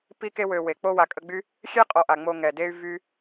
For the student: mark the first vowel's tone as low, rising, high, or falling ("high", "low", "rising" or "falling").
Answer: high